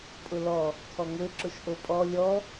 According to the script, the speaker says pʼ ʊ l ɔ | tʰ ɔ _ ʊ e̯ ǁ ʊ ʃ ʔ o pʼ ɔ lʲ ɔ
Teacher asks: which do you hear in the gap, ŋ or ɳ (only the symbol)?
ŋ